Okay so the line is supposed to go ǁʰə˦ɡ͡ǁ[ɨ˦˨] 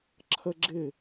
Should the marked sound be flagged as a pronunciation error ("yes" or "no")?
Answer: yes